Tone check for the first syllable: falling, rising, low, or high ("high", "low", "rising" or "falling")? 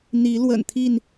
rising